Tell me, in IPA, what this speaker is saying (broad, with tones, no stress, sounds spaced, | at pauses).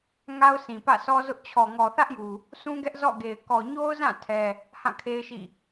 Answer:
ŋ a˦ ʊ̯ sʰ ĩ˨ p ä̰˦˨ s ɔ˦ z ʊ˦ ʔ t͡ɕʰ ɔ˨ ŋ ɔ˨ θ ä˦ ʔ j u˨ | s ũ˦ ɡ ɛ˦ ʔ z ɔ̰˦˨ ɡ e˨ ɪ̯ k ɔ˨ ɲ o˦ ʊ̯ z ã˦˨ tʰ ɛ˦ | h ã˦˨ kʰ e˦ ɪ̯ ʃ ḭ˦˨